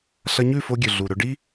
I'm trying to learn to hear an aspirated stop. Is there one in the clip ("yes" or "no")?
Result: no